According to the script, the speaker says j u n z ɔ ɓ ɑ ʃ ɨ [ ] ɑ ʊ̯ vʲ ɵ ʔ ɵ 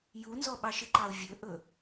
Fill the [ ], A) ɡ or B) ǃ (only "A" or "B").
B